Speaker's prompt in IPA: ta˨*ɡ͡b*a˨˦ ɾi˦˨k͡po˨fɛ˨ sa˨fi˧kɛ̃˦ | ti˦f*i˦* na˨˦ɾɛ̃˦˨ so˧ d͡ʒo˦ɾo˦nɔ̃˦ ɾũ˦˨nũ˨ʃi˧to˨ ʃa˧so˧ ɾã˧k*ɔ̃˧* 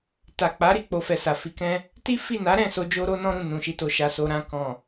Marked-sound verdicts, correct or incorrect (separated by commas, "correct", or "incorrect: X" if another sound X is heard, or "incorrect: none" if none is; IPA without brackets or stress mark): incorrect: k͡p, incorrect: i˦˨, incorrect: ɔ̃˨